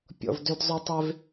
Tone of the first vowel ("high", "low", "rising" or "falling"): low